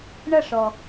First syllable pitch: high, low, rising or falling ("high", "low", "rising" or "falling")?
falling